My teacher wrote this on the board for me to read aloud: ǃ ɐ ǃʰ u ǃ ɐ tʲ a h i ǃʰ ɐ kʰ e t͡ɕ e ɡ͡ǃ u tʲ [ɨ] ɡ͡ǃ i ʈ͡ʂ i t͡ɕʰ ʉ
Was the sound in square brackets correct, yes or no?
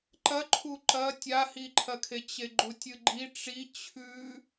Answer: yes